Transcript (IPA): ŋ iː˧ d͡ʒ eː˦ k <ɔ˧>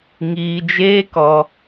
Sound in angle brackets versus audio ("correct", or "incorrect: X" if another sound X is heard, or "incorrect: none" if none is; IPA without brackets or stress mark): correct